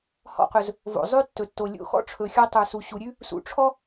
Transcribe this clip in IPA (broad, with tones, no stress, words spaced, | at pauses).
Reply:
hɔ̰˧qɵ˩z | vo̰˩zˤʉ˥ tːɵ˩tːo˩ lʲo̰˧ xɔ̰˥ʈ͡ʂʰɵ˩xʲɔ˧ tˤʉ˩su˩ɕu˩ ɾʲʉ˥ | sṵ˧ʈ͡ʂʰɔ˥